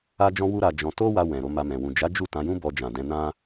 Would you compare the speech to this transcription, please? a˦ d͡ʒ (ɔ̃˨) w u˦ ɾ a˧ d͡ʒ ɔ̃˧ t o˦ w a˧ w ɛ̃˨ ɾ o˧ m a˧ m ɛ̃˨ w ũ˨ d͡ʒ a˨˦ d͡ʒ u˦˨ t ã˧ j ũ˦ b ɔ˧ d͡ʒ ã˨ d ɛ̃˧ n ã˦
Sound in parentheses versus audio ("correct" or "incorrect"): incorrect